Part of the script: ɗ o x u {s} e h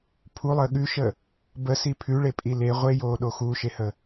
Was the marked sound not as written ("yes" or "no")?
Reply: yes